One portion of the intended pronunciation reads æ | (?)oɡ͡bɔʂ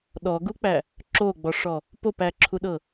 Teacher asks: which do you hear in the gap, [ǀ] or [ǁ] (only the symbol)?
ǁ